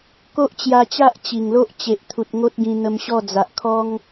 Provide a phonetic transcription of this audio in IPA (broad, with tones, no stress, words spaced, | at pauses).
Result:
ko˦ʔt͡ɕja˧t͡ɕa˦ʔ t͡ɕi˨˩ŋlo˦ʔ t͡ɕe˨ʔt̪ʰu˨t̚ ŋo˦t̚ɡĩ˧n̪ə˧mɕɔ˥˧ d͡za˨ʔkʰɔ˦ŋ